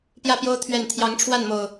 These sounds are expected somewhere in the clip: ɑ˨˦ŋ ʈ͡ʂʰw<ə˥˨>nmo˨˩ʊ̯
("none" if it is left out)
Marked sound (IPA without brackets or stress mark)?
a˥˨